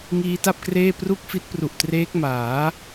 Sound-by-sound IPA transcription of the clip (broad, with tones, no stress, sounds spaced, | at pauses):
ŋ iː˦˥ t a˥˩ p̚ k r eː˥˩ p r u˥˩ k̚ f i˦˥ t̚ p r u˨˩ ʔ t r eː˦˥ k̚ m aː˩˦